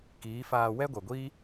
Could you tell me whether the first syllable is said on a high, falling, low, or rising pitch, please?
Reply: rising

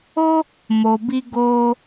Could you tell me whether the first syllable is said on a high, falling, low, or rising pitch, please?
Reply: high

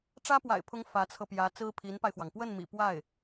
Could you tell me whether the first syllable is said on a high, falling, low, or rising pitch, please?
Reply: high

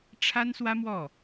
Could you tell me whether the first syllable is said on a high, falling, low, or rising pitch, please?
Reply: high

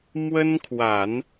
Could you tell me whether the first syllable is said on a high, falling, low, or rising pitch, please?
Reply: high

